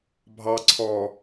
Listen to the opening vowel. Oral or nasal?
oral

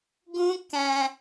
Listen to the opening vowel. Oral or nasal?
nasal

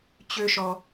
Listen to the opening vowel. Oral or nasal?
oral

